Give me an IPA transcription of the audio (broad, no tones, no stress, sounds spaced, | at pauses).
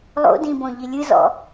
lˠ o̰ d ĩ b õ ʎ i lʲ ɨ z ɔ̰